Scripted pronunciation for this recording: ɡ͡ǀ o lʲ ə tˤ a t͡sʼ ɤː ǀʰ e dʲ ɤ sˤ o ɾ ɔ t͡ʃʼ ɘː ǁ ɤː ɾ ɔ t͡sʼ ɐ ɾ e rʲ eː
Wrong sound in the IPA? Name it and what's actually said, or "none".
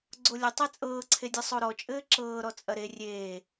none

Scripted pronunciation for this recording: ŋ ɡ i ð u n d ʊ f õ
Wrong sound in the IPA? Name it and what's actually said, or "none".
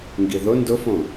u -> ʊ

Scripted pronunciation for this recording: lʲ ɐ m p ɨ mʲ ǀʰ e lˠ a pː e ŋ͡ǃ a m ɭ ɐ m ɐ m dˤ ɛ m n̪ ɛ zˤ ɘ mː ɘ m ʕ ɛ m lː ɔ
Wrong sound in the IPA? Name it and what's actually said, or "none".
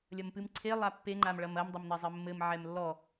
mʲ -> m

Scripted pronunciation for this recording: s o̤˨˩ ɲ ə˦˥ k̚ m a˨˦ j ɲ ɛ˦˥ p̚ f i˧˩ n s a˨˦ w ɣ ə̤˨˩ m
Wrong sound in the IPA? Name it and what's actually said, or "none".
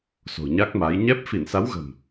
ə˦˥ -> a˦˥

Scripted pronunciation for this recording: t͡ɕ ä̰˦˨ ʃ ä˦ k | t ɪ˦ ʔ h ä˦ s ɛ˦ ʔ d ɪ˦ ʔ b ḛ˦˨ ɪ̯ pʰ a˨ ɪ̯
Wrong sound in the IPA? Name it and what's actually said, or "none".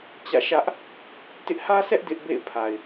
k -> ʔ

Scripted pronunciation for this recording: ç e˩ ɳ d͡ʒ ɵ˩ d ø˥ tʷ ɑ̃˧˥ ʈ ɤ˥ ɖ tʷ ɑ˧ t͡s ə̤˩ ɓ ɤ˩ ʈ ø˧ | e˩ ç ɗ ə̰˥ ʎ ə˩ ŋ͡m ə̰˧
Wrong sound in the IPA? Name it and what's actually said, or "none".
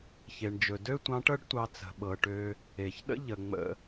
none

